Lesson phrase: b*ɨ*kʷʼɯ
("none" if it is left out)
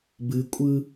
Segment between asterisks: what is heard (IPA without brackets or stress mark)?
ɨ